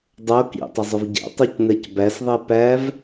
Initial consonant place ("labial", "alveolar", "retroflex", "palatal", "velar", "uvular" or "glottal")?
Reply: alveolar